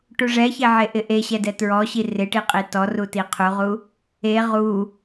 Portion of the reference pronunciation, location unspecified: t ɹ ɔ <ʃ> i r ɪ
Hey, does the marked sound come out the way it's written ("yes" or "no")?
no